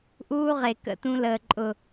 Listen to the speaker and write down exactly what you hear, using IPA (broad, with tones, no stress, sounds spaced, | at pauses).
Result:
ʔ uː˦ ʁ e˨ k ə̰˧ t ũ˧ l əː˨ ǃʼ ʊ˨